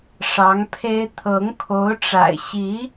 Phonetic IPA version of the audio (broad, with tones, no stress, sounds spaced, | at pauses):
ʂ ɑ˧˥ ŋ pʰ e˥ ɪ̯ t̪ʰ ɤ˧˥ ŋ kʰ o˧˥ ʊ̯ ʈ͡ʂ a̰˨˩ ɪ̯ ɕ i˧˥